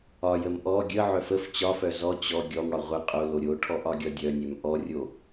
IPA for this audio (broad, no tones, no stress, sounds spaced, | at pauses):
ɒ j ə m ʔ ɔ ɡʲ ə ʕ œ f ə f t͡ɕ ɒ f œ z ɔ t͡ɕ ɔ ɡʲ ɔ m ɽ ɒ ʁʷ ə qʼ o l o ɾʲ o ʈʰ ɔ ʔ ɒ ɡʲ ɒ dʲ œ nʲ œ m ʔ ɔ rʲ o